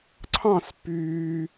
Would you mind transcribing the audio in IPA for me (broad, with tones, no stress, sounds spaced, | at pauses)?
ǀʰ ɑ̃˥˧ s pː yː˧